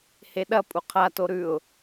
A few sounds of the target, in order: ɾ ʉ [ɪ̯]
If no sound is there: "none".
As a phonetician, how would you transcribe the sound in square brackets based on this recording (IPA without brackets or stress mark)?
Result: ʊ̯